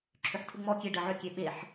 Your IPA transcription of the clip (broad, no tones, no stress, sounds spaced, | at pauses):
ǁʰ ʏ ħ tʰ u ŋ͡m ɔ kʲ e ɖ ɜ ʕ ʏ kʲ e ɓ e ħ